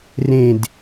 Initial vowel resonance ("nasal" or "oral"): nasal